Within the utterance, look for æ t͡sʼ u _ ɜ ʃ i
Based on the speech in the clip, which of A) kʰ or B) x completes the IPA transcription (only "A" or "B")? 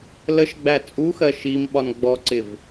B